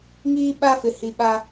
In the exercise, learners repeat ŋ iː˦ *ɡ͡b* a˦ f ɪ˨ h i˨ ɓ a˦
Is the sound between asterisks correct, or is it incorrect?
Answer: incorrect